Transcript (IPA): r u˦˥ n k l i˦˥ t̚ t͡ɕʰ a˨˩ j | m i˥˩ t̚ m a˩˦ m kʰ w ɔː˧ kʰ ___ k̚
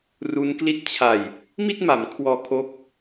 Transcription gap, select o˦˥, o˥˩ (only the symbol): o˦˥